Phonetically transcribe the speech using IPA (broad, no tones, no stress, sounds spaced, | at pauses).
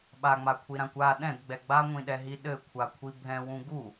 ɓ a ŋ͡m a kʷʰ i ɾ ã kʷ a ɗ ɛ̃ d ɡ͡b ɛ ɡ͡b a ŋʷ ĩ ɗ ɛ ɦ i ɗ ɘ kʷʰ a kʷʰ i bʱ ɛ̃ w ũ ɡ u